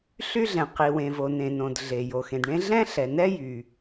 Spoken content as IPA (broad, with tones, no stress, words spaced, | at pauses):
ɬy˥ɮɛ̃˩ qi˩wẽ˩vo˩ nẽ˩nõ˩d ɮe˩ jo˩xẽ˩dɳẽ˥ ɮɛ̃˥ɬɛ˩nɛ˥ jy˩